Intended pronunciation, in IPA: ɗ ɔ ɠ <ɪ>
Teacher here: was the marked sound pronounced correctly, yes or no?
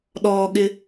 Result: yes